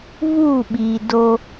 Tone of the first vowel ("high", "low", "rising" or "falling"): falling